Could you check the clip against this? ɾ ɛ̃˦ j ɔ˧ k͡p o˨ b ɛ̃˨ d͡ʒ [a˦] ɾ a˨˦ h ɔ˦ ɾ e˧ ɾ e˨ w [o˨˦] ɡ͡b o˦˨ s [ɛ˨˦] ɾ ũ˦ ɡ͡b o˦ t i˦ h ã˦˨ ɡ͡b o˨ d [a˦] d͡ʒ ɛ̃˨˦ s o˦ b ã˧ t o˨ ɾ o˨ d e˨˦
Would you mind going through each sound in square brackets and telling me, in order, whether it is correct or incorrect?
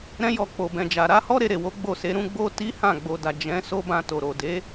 incorrect: a˨, correct, incorrect: e˨˦, incorrect: a˨

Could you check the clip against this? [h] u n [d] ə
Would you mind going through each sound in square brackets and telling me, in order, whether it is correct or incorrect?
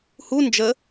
correct, incorrect: d͡ʒ

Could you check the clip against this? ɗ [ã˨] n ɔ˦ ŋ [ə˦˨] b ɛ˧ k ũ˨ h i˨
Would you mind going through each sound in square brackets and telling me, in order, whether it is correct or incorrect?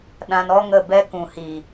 incorrect: ã˧, correct

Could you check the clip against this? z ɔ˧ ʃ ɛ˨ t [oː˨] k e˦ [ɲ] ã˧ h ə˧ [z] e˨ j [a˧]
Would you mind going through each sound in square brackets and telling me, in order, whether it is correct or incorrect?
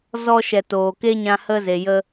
correct, correct, correct, incorrect: ə˧

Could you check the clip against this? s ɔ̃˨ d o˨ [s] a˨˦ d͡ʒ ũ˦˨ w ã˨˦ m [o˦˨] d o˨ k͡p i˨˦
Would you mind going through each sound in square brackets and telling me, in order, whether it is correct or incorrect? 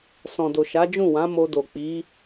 incorrect: ʃ, incorrect: o˧

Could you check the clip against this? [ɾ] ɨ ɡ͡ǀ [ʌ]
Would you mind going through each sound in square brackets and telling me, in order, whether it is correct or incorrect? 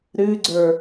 correct, incorrect: ə˞

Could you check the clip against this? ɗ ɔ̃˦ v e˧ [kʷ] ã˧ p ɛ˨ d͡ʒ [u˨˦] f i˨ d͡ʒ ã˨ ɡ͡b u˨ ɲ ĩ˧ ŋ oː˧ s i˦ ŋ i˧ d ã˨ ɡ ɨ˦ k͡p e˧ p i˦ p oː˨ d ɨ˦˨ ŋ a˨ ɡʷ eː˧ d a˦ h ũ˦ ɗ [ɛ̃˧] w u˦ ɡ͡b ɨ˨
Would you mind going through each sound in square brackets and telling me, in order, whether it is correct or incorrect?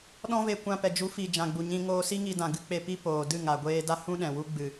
correct, correct, incorrect: ɛ̃˨

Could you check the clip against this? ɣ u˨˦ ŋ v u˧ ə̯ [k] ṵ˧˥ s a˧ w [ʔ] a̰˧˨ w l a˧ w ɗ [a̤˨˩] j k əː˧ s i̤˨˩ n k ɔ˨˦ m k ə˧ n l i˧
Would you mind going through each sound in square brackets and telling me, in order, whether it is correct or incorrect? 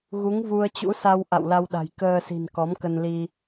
incorrect: t͡ɕ, correct, correct

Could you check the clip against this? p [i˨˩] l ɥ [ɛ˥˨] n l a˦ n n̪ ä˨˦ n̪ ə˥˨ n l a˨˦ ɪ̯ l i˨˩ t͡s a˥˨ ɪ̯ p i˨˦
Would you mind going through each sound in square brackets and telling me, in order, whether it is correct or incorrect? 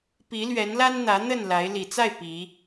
incorrect: i˨˦, incorrect: ɛ˨˦

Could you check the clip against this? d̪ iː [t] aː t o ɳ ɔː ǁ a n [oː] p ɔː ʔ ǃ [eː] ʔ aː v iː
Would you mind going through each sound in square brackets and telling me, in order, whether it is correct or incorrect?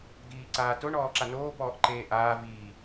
incorrect: ǀ, correct, correct

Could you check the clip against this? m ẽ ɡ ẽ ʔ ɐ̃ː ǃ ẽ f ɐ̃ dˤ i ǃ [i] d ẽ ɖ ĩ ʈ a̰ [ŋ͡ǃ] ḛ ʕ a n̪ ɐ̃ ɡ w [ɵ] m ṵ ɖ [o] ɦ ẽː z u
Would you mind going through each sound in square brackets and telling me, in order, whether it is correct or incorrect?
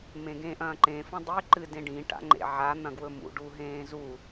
incorrect: ɨ, correct, correct, incorrect: u

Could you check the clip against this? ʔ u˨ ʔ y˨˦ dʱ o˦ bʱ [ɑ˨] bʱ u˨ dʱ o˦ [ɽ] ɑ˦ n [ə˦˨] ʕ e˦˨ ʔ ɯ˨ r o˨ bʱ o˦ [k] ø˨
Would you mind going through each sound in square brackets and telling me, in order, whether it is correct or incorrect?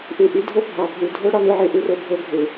correct, correct, incorrect: ɯ˦˨, incorrect: ɡʱ

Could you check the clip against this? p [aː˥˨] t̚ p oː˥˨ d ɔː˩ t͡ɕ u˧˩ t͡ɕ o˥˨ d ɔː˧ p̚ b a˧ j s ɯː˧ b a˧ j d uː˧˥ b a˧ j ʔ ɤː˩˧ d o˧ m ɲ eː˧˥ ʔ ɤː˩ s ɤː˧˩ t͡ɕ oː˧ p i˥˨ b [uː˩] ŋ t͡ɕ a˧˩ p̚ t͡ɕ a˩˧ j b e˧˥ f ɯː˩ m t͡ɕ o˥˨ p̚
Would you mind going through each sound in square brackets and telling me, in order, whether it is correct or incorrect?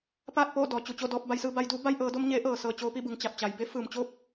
correct, incorrect: ɯː˩

